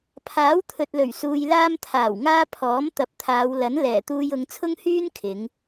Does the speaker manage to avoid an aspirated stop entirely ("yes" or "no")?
no